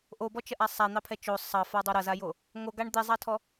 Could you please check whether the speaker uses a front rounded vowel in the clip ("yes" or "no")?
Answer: no